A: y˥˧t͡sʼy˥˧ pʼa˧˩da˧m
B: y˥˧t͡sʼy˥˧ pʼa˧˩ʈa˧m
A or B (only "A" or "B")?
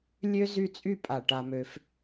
B